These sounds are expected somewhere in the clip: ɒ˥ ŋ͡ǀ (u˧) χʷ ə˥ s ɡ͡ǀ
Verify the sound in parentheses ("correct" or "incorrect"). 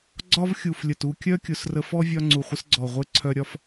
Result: incorrect